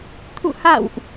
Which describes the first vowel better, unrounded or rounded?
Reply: rounded